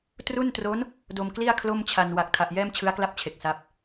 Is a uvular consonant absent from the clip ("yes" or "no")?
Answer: yes